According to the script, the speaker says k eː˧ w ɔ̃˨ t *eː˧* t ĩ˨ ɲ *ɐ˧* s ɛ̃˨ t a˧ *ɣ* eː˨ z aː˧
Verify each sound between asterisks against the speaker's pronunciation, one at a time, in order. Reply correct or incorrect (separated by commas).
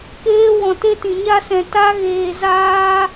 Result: incorrect, incorrect, correct